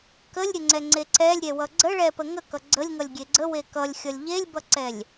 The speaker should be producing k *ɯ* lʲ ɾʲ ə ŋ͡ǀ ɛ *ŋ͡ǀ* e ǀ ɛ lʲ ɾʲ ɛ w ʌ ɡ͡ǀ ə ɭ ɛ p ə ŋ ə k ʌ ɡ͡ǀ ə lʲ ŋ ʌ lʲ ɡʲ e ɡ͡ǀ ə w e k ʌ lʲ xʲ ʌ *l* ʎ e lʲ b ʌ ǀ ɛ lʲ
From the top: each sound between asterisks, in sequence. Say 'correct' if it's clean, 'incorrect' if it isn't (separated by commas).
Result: incorrect, correct, incorrect